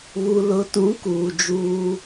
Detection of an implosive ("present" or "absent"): absent